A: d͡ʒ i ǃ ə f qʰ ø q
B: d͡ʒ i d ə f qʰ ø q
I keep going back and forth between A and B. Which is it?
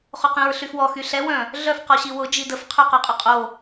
B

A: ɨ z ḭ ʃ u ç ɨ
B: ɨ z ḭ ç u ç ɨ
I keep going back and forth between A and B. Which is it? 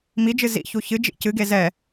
B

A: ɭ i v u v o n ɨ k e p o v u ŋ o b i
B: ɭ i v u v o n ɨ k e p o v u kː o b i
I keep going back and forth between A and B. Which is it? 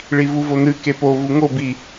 A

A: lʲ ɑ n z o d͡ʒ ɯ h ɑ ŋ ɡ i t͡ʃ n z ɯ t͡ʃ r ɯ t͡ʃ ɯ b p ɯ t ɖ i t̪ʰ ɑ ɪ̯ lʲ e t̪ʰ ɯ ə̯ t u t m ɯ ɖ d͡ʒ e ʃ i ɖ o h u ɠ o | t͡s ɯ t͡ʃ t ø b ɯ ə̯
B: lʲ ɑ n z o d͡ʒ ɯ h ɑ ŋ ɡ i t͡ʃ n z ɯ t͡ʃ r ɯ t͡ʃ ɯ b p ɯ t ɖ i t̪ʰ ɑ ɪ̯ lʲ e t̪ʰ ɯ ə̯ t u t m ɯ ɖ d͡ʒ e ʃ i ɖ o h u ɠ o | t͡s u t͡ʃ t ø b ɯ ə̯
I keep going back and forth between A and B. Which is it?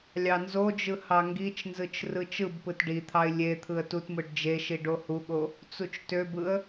B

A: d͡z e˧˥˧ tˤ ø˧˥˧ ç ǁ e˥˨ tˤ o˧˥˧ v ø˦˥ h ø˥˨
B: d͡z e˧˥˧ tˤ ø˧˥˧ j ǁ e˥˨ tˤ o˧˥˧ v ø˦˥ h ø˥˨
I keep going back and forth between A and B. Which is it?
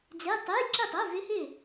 B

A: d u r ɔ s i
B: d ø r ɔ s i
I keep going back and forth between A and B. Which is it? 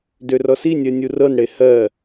B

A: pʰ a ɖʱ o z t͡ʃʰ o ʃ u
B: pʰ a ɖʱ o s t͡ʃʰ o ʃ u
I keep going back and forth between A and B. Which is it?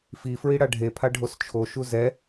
B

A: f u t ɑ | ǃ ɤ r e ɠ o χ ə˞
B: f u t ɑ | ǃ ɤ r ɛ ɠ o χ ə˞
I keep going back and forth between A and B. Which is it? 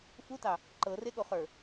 A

